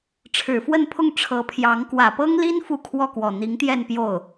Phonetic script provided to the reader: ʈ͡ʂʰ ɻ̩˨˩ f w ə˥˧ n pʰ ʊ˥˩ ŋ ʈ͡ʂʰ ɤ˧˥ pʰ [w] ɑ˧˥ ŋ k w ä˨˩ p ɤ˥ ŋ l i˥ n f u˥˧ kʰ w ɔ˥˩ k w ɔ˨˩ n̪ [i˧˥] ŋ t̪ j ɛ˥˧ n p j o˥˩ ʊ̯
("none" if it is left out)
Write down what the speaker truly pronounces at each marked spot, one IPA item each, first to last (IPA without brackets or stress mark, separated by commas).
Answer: j, i˧˥